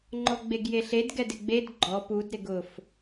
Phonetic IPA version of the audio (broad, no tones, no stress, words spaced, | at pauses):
ŋ͡ǃɔɡ͡beɡjeɬed ɡɛdɪɡ͡bed ɡ͡ǃɔ pud ɾɪɡʊf